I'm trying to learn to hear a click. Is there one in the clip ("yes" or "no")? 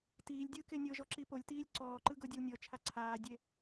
yes